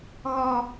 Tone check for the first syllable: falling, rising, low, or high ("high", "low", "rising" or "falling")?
low